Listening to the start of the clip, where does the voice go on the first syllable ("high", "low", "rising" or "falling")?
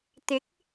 rising